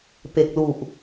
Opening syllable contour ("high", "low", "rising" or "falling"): low